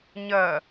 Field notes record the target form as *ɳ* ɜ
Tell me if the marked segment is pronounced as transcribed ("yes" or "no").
no